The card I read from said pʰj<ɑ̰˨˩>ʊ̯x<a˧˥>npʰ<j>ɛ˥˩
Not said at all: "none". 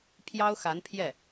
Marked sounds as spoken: ɑ˥, a˧˥, j

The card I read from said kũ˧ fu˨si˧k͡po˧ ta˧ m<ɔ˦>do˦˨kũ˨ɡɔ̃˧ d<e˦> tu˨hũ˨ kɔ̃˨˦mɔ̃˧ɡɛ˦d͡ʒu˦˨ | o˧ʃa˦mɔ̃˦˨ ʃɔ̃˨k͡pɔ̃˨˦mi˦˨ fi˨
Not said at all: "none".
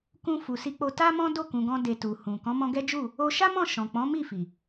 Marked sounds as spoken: ɔ̃˦, e˨

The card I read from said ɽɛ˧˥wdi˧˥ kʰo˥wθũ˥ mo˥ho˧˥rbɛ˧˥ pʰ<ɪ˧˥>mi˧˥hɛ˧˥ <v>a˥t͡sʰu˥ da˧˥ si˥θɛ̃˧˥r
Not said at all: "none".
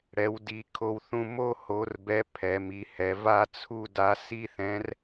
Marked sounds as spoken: ɛ˧˥, v

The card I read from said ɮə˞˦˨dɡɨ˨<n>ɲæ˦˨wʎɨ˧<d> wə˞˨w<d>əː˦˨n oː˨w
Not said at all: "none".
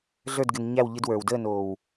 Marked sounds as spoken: n, d, d

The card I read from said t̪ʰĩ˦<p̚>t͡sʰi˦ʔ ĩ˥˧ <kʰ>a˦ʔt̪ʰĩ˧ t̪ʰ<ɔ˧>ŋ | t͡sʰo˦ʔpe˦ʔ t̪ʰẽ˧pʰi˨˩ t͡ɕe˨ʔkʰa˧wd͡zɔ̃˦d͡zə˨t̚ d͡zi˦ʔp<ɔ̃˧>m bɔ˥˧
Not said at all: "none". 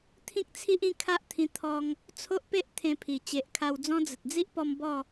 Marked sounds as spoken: k̚, kʰ, ɔ˧, ɔ˧

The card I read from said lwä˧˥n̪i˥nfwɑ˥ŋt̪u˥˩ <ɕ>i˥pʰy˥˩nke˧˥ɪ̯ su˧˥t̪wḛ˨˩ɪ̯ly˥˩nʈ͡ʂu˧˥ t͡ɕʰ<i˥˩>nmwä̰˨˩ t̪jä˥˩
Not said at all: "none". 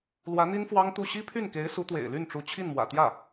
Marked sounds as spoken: ɕ, i˥˩

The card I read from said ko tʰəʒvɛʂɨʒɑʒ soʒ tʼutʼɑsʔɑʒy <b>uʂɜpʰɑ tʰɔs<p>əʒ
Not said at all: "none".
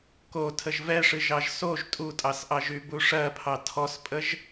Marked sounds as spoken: b, pʼ

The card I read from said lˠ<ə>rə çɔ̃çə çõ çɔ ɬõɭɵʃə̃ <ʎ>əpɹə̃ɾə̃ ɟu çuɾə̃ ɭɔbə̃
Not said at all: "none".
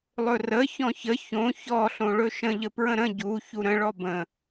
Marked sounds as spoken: ɵ, ʎ

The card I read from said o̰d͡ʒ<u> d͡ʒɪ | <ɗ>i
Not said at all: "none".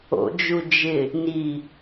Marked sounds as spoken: u, n

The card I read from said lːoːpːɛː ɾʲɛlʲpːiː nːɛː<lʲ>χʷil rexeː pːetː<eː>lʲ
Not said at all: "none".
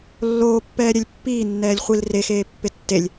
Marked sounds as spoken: lʲ, e

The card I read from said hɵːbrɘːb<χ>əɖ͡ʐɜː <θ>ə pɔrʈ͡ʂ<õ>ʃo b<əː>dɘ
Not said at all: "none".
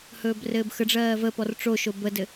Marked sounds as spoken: x, v, o, ə

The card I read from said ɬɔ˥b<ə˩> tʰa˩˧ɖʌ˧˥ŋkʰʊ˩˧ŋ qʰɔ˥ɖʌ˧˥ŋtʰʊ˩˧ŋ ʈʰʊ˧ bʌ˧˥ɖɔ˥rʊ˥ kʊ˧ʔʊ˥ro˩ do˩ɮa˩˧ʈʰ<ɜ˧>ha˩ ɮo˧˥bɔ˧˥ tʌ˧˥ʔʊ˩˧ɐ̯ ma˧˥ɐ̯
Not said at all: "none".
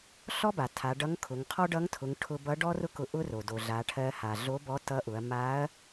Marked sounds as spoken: a˩, ɜ˧

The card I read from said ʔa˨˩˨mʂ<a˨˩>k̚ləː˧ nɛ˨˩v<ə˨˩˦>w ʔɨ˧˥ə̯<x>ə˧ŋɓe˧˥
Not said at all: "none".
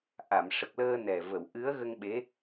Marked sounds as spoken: ə˨˩, ə˨˩˨, ɣ

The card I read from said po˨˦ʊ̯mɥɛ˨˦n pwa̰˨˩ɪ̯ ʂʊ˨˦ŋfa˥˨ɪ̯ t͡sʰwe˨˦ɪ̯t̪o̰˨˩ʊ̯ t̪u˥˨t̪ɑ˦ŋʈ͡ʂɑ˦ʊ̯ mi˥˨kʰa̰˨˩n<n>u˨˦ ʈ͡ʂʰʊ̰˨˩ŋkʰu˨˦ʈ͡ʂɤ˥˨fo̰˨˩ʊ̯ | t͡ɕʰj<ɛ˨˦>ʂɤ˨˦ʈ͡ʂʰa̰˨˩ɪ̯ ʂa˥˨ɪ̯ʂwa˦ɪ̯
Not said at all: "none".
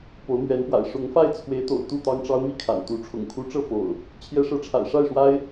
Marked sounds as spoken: t̪, ɛ˨˦

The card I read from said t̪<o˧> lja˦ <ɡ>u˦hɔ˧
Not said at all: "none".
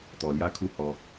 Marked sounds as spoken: ɔ˧, kʰ

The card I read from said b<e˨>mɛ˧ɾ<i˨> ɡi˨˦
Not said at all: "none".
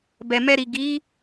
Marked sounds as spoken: ɛ˨, i˨

